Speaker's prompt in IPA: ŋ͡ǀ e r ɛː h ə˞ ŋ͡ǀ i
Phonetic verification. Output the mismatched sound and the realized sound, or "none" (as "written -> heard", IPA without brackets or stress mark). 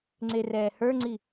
none